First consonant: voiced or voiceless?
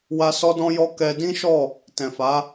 voiced